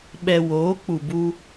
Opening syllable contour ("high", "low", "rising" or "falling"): low